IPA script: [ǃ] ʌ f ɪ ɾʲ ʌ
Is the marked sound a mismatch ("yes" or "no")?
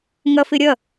yes